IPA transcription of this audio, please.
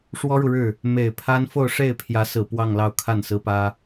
ʂ w ɔ˥ ɻ u˨ ɻ ɻ̩˥˩ | m e˨˩ ɪ̯ pʰ a˥ n f o˥˧ ʊ̯ ʂ e˥˩ ɪ̯ pʰ j ä˧˥ s ɹ̩˨˩ p w ɑ˥˧ ŋ l ɑ˥˧ ʊ̯ kʰ a˥˩ n s ɹ̩˥ p ä˥

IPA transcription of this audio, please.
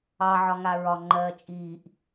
ɑ ʕ ɒ ŋ a ɹ ɒ ŋ͡ǃ ɜː t͡ʃʼ iː ʔ

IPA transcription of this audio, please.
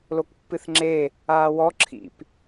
l o k pː ɨ θ ŋ͡ǁ e | aː w ɔ ǁʰ ḭ p

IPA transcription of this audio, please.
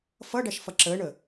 f ʌ ɖ æ ʃ f ʌ ǁ əː ɳ ə

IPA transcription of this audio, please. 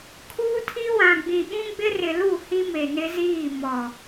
kʰ uː˦ tʰ i˦ w ã˨ ɡ͡b ĩ˨ ɓ ũ˦ ɡ͡b ɪ˦ r ɪ˨ l u˦˨ h i˦ m e˨ n ɪ˦ z iː˦˨ m ɔ˨

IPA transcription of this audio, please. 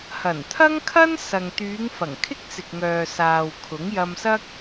h ɐ˨˩ n t̪ʰ ɐ˥ ŋ kʰ ɐ˥ n s ɐ˨ ŋ t̪ yː˨˧ ŋ f ɐ˨˩ ŋ kʰ ɪ˥ k̚ t͡s ɪ˨ k̚ ŋ œː˨ s aː˨ w kʰ ʊ˨˥ ŋ j ɐ˧ m s ɐ˥ k̚

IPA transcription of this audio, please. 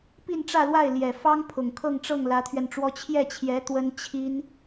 p i˥˧ n ʈ͡ʂ ä˥˧ l w a˥˩ ɪ̯ l j ɛ˨˩ f ɑ˥ ŋ pʰ ʊ˨˩ ŋ kʰ ɤ˥˧ ŋ ʈ͡ʂ ɤ˥˩ ŋ l ä˧˥ t̪ʰ ɥ ɛ˧ n ʈ͡ʂ w ɔ˥ t͡ɕʰ j ɛ˥˩ t͡ɕʰ j ɛ˧˥ t̪ w ə˥ n t͡ɕʰ i˥ n

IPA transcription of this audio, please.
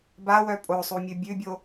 b a w œ pʼ o sˤ u mʲ ʉ bʲ ʉ bʲ o

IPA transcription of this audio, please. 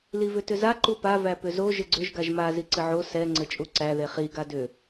l i v ʏ t ʏ z a ǃ u p a v æ p ʏ z o ʒ ɘ ɡ͡ǀ ʏ ʒ ɡ a ʒ m a z i ǀ ɘ ʕ o s ɛ ŋ͡ǀ ɘ t͡ʃʼ u ǀ æ ð e χ i ɡ a d ʏ

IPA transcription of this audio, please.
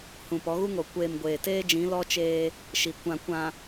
h ũ˨ p ɔ˨˦ ɣ u˦ ŋ o˨ kʷ eː˨ m ɡʷ eː˨ t eː˦ d͡ʒ ĩ˨˦ l ɔ˦ t͡ʃ eː˦ | ʃ i˨ kʷ ã˨ kʷ ã˨

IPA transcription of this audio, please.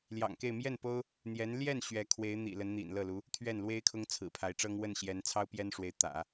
l j ɑ̰˨˩ ŋ k e˥˧ ɪ̯ m j ɛ˥˩ n p o˥ ʊ̯ | n̪ j ɛ˧˥ n l j ɛ˥˩ n ɕ ɥ ɛ˧˥ kʰ w e˧˥ ɪ̯ n̪ ḭ˨˩ l ə˧˥ n n̪ ḭ˨˩ n l ɤ˥˩ l u˧˥ | t̪ʰ ɥ ɛ˥˩ n l w e˥ ɪ̯ kʰ ʊ˥ ŋ t͡sʰ ɹ̩˨˩ pʰ a˧˥ ɪ̯ ʈ͡ʂ ɤ˥ ŋ w ə˥˩ n ɕ j ɛ˧˥ n t͡sʰ ɑ˥ ʊ̯ p j ɛ˥ n ʂ w e˧˥ ɪ̯ t̪ ä̰˨˩˦

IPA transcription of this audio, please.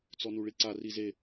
t͡s ɔ n u ɭ i ǀ a r i z e

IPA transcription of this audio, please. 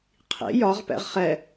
qʰ ḭ j ɒ ʁ p ɛ̰ ʁ χ ɛ

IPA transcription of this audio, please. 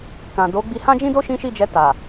k ã˨ d o˨˦ ɡ͡b i˧ h ã˦ d͡ʒ ĩ˦ d o˦ ʃ ĩ˦ ʃ i˦˨ d͡ʒ ɛ˧ t a˨

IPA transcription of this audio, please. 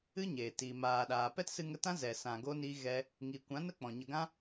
ɨ˦ ɲ eː˨ t i˨ m aː˨ ɗ aː˨ p ɛ˦ t s ɨ˧ ŋ ə˧ t ã˦ z ɛ˨ s ã˨ ɡ o˧ n i˧ ɣ ɛ˧ | ŋ i˨ kʷ ã˨˦ n ə˦ k͡p ɔ̃˨ ɲ ə˨ ɡ ã˧

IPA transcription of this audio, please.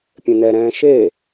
pʲ ẽ n ɛ ɾ ɛ̃ː ʃ e

